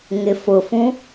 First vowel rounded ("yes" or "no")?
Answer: no